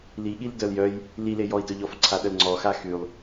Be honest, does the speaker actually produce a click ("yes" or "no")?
yes